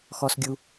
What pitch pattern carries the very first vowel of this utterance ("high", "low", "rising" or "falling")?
low